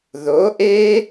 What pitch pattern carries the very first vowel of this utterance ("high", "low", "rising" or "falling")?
rising